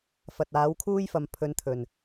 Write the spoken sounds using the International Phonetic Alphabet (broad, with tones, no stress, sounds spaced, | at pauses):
f ɐ˨ t̚ aː˨˥ w kʰ uː˥ j f ɐ˨ m pʰ ɵ˨˧ n t̪ʰ ɵ˨˩ n